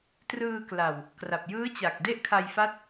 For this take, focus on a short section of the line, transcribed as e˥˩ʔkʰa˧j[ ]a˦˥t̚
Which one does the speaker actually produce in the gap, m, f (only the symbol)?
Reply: f